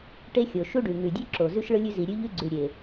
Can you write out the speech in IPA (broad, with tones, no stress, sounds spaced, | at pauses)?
ʈ e˧ xʲ o˩ ʃ u˧ ɖ ʉ˩ ŋ ʉ˩ dʲ ʉ˧ ǁ o˩ z ʉ˧ ʃ ɭ ɯ˧ lʲ ʉ˧ z i˩ ɾʲ ʉ˧ ʎ ʉ˧ ɡ͡ǀ ʉ˩ ɾʲ e˩